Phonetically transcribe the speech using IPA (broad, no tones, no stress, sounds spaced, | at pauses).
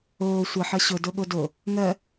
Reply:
oː sʷ ʌ ħ ʌ ɕ ʊ d o ɠ o d o | ŋ ɜ